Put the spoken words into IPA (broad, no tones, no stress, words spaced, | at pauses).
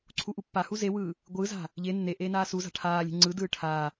ǀʰuʔupːahu zewɯː | ɡʷɯza̤ | ʎe nːeʔeː naːsuza̤ ʈʰaːlʲe̤ ŋ͡ǀɯdɯː ʈʰaː